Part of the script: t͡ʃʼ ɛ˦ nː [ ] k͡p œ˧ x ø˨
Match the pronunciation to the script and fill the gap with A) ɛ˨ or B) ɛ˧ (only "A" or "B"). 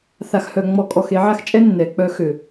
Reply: A